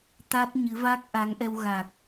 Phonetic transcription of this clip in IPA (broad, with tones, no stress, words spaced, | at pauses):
t̪a˦˥t̚ɲɨ˨˦va˦˥k̚ ʔa˨˦ŋʔɛ˧w ɣa˨˩k̚